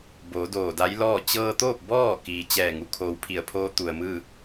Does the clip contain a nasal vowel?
no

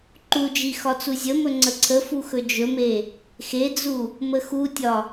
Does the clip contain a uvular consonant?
no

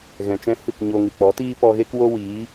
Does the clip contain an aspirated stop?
no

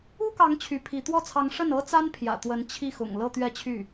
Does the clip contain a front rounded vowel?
yes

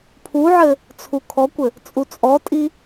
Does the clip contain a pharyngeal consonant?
yes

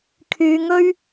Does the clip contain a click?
no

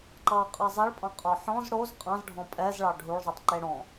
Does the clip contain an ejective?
yes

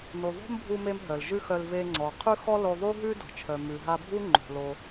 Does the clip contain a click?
yes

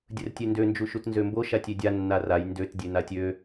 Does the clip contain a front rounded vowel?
yes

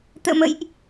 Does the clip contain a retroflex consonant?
no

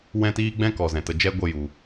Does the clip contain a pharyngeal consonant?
no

